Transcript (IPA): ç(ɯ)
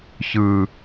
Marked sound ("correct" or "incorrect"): correct